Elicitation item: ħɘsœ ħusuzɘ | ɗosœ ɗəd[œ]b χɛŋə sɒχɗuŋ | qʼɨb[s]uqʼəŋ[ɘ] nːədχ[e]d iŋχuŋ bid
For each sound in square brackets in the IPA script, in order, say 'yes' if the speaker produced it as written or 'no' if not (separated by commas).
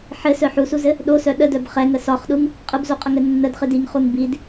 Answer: yes, no, yes, no